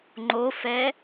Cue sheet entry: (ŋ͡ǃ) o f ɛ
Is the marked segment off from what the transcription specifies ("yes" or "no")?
no